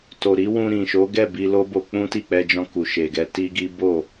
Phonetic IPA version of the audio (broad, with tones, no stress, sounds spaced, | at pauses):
t o˨ ɾ i˨˦ w ũ˧ ɾ ĩ˨ ʃ o˨˦ ɡ ɛ˦˨ b i˧ l o˦ b o˧ k͡p ũ˦ t i˦˨ k͡p ɛ˧ d͡ʒ ɔ̃˧ k u˨ ʃ e˨ ɡ ɛ˧ t i˦ ɡ i˦ b o˦˨